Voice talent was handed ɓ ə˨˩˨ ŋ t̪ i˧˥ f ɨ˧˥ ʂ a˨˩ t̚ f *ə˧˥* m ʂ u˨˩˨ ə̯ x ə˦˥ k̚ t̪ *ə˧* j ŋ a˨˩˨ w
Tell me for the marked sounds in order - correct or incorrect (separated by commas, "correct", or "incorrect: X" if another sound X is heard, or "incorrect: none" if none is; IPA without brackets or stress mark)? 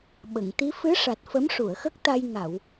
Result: correct, incorrect: a˧